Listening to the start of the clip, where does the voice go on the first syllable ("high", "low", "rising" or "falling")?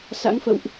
rising